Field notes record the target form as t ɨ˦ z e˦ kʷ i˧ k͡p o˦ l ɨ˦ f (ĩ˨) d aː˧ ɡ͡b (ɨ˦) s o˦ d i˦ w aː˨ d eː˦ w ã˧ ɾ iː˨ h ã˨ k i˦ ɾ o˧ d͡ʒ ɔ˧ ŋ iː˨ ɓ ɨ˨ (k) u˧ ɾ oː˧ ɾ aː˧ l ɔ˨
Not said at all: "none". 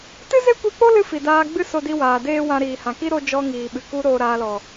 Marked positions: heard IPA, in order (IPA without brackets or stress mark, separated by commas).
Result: i˨, ɨ˦, k